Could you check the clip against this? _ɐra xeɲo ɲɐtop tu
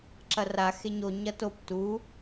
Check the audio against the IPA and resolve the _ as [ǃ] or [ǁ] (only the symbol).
ǁ